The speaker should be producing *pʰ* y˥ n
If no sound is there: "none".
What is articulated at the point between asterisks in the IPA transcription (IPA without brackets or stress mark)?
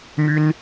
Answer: m